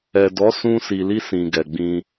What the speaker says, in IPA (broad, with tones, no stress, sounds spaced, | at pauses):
ɛ˨ d ɔ˨˦ s ũ˧ s i˨ l i˧ s ĩ˨ ɡ ɛ˨ ɡ͡b ĩ˧